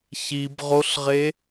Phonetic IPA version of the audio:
ç i b ʁ o ɬ ʁ e

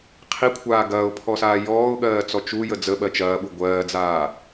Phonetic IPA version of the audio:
qʰ i kʷʰ aː ɡ ɐː ʊ̯ pʰ ɔ s aː j ɔː ʊ̯ ɠ ɜː t͡s ɔ t͡ʃ u j ə d͡z ə ɓ ɜ t͡ʃ ɐː ɓ u ɡʷ ɜː d͡z aː

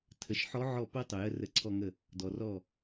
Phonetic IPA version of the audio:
tʰ ə˩˥ ʃ ħ ɔ˧˥ ʕ ɔ˥˩ p o˥ tˤ ʊ˨ j ə˥˧ r ə˧˥ ǀʰ ɔ˥˧ ŋ ə˥˩ | d ɔ˨ r ɔ˥˩

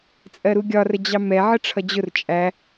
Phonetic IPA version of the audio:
t͡sʼ ɜ ɾ u ɡʲ ɒ r ə d͡ʑ ɑ m ɛ ʕ ə ʈ͡ʂʰ ʌ d͡ʑ ʊ r t͡ʃʼ æ

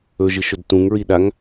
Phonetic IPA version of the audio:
ɵ ʒ ɨ ʃ ɵ d t ũ ŋ ɹ i ɗ a ŋ

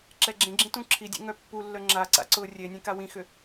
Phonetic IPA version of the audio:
ǁ ɛ ɡ͡ǁ ẽ ɡ͡ǁ ĩ t ũ ǁʰ i dʲ ḛ ŋ œ pː u lː œ ŋ͡ǁ a ǀ a̰ ǀ ʊ rʲ e nʲ ẽ k a w ĩ x ʏ

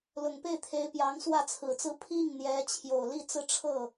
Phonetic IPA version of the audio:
l ʊ˨˩ ŋ p e˥˩ ɪ̯ t̪ʰ e˧˥ ɪ̯ p j ɑ˧˥ ŋ s w ä˥˩ t͡sʰ ɹ̩˨˩ t͡s ɹ̩˥ pʰ i˥˩ ŋ n̪ j ɛ˧˥ t͡ɕʰ j o˨˩ ʊ̯ l i˥˧ t͡s ɹ̩˥˧ ʈ͡ʂʰ ɤ˥˩

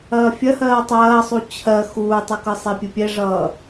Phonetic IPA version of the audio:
ɐː fʲ ɐ h ɜː tˤ ɐː sˤ u t͡ɕʰ ɜ x uː tˤ ɯ k ɯ sˤ e pʲ ɯ pʲ ɛ ʐ ʌː

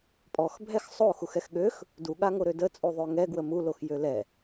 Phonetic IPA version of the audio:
pʼ ɔ x bʱ ɛ x sˤ o x u x ɛ x ɠ ø x | d u ɠ a ŋ o ɾ ø d ə t͡sʼ u ðˤ ø ŋ ɛ ɡ w ə m u l o x j ø l ɛ

